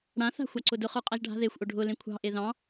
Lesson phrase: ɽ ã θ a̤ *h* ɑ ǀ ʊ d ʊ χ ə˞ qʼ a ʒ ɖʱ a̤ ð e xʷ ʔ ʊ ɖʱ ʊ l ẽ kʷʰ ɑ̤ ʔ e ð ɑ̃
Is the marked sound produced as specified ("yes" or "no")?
no